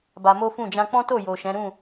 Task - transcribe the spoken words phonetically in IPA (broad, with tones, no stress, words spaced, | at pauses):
ba˧mo˦fũ˦˨ d͡ʒã˧k͡pɔ̃˦to˦˨jo˨ ʃɛ̃˨˦ ɾũ˦˨